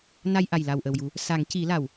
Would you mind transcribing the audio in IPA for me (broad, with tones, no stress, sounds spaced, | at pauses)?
n a˧ j ʔ a˨˩ j l a˨˩ w ʔ ə˨˩ w j u˨˩˦ | s a˨˩˦ ŋ c i˨˩˦ l a˨˩˨ w